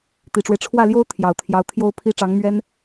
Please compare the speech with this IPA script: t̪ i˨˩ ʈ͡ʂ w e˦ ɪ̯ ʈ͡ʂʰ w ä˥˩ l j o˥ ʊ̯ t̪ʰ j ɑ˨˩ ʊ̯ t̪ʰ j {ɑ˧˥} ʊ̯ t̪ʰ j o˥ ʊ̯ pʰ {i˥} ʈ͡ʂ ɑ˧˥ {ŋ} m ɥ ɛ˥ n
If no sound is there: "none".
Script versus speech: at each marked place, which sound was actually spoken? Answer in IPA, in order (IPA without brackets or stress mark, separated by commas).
ɑ˧˥, i˥, ŋ